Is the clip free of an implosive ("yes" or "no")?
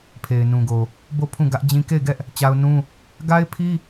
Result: yes